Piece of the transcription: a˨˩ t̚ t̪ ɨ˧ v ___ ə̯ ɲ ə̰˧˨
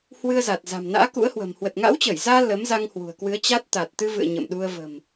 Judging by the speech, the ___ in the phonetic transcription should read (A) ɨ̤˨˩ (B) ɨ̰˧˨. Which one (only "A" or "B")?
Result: B